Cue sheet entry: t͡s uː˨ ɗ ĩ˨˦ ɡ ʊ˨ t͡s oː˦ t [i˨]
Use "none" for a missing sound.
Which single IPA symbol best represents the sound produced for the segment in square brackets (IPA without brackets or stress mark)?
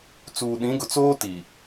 i˨